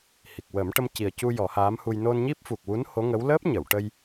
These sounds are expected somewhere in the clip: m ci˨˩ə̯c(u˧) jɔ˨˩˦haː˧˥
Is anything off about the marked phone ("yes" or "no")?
no